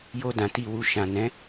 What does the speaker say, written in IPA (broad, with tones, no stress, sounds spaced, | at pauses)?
j o˧ d ã˨ t i˨ w u˨ ʃ ã˨ n ɛ̃˨˦